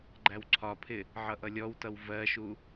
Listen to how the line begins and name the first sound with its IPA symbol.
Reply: ɡ͡ǃ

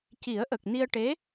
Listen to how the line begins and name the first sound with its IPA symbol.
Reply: c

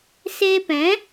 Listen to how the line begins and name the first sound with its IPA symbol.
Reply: s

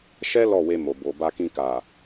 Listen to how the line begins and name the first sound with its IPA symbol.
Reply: ʃ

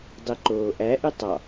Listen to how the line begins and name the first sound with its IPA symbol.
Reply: dˤ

